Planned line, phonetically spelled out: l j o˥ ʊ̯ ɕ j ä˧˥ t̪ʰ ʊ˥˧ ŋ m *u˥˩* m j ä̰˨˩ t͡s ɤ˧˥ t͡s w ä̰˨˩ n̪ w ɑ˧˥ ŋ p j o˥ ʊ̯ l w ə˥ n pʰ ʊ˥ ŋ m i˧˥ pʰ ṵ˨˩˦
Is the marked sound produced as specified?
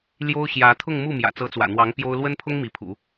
yes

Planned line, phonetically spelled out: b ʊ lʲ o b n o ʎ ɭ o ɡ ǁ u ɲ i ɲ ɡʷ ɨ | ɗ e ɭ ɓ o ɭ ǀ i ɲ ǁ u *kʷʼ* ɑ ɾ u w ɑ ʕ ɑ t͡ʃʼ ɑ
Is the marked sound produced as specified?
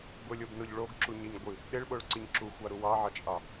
no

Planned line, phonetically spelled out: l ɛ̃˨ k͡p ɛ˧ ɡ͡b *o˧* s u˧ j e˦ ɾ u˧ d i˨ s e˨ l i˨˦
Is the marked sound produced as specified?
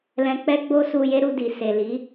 yes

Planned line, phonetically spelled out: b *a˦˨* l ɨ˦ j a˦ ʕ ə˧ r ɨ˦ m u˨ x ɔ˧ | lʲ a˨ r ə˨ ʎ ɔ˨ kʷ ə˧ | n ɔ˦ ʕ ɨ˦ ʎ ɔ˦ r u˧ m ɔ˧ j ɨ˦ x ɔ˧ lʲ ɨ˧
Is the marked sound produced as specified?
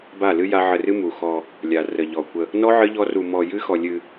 yes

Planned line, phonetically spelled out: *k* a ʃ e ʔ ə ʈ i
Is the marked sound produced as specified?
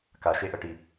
yes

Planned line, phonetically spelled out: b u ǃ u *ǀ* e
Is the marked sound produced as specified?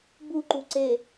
yes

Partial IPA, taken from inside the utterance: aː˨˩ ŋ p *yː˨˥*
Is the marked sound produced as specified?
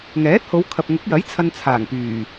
no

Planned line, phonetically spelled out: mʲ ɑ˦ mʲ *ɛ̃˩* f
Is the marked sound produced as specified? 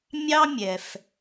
no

